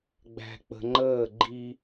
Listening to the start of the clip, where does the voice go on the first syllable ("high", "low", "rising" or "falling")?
low